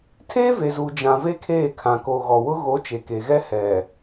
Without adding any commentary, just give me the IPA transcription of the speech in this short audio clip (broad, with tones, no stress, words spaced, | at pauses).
tʰeː˦ ve˨zuː˨ d͡ʒã˨ ve˦kʰeː˦˨kʰã˨ ko˨ ɣɔ˨wʊ˦ ɣo˨˦ t͡ʃe˨ke˨ɣɛ˦ hɛ˨